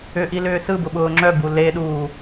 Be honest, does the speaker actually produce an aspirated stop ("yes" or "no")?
no